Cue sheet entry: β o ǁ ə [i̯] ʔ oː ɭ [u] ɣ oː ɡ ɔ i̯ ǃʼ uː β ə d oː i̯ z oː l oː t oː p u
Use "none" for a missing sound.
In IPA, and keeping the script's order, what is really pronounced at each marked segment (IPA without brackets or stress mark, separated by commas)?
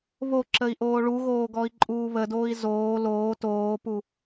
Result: i̯, u